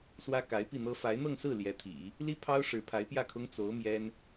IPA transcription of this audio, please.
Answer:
s w ä˥ k a˧˥ ɪ̯ p i˥˩ n̪ ɤ˥ f a˧˥ ɪ̯ n̪ ɤ˥˧ ŋ s ɹ̩˥˩ l j ɛ˧˥ t̪ʰ ḭ˨˩˦ | l i˥ pʰ ɑ˥ ʊ̯ ʂ ɻ̩˧˥ pʰ a˧˥ ɪ̯ p j ä˥˩ kʰ ʊ˥ ŋ t͡s o˧˥ ʊ̯ m j ɛ˥ n

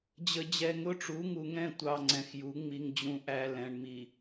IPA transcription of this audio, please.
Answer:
d͡ʑ ə˨ d͡ʑ ɛ˨ ŋ ʊ˦ ʈ͡ʂ u˨˦ ŋ u˨ ŋ ɛ̃˦˨ tʷ ɑ˨ ŋ͡ǀ ɛ̃˨ x j u˨˦ ŋ͡m i˦ ŋ d͡ʑ ũ˦ ʔ æ˦ l ɛ̃˨ ɳ m i˨

